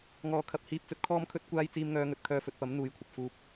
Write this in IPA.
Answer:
ŋɔː˨˥kʰɐ˨p̚hiː˧p̚t͡sɵ˨˥t̚ kʰɔː˥mkʰɵ˥t̚kʷaː˥j t͡siː˧mŋœː˧ŋɵ˨t̚ kʰœː˧fɵ˨t̚pɐ˨˥m n̪uː˧jkʷʰɐ˨p̚ fuː˧p̚

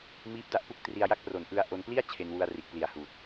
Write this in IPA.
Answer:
miː˦˥p̚da˥˩ʔpu˥˩k̚ tri˧a̯ja˦˥k̚pro˨˩n ʔɯ˧a̯ ʔo˧npli˥˩a̯ t͡ɕʰe˧nwu˧a̯ri˨˩ʔ pli˨˩a̯huː˨˩t̚

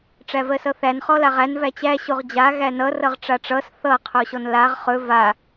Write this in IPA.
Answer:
ʈ͡ʂævɜsʌθæn χɔlaʁæn væt͡ɕæ ɕoʁd͡ʑa ɣænʌ rʌʁʈ͡ʂaʈ͡ʂʌs θʌ qʰoɕɔnlaʁ χɵ va

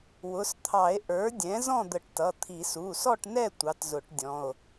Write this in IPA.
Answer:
wʊ˩˧˩st̪ʰɑ˨˩˦e̯ ʔə˞˩˥dʲɛ̃˩˥ zɔ̃˥˨d̪ə˨˩˦ʈ tʌ˩˧˩t̪ʰi˨˩˦ su˩˧˩sɔ˥˨ʈnɛ˥˨ tʷɑ˩˥tzʊ˨˩˦ʈ dʲɔ̃˩˧˩o̯

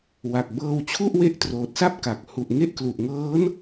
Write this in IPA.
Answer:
wa˨˩k̚bɤː˧wt͡ɕʰu˥˩ʔ we˦˥ʔtroː˨˩t̚sa˥˩p̚ ka˨˩k̚ hu˨˩ʔ ŋe˥˩ʔklu˨˩ʔ ŋɤː˦˥n

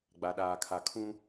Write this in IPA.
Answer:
ɡ͡ba˨ɗaː˨kʰa˨ kʰũ˦

